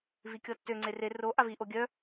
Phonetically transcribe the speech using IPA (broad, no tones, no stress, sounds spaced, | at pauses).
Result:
v i kʲ ɔ tː ø ŋ͡ǀ e r e r o ʔ a v i ʔ o ɡʲ œ